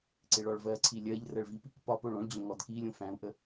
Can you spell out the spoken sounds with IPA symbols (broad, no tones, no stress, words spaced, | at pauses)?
ǀɪɭɔɭvɜǀʰi lʲɜʎ rɜɭvipik pɒ poɭõɭd͡ʑõ ŋɔdkilʲõ fæ̃u̯ʔə